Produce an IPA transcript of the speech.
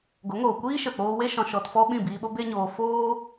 ɡ o˨˦ ŋ oː˨ kʷ iː˦ ʃ ə˨ k͡p oː˧ w e˦ ʃ ɔ̃˧ ʃ ɔ˧ t f ɔ˦ ɓ ĩ˦˨ b iː˧ ɓ o˦ b e˦ ɲ oː˧ f oː˦

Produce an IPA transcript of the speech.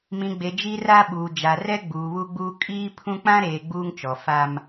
m ĩ˨ ɡ͡b e˨ d͡ʒ i˦ r a˦ ɓ uː˨ d͡ʒ a˨ r ɛ˦ ɡ͡b uː˨ β u˦ ɡ͡b uː˦ kʼ iː˦ pʰ ũ˦ k͡p ã˦ ɾ eː˨ ɡ͡b uː˦ ŋ t͡ʃ ɔ˨ f a˦ m

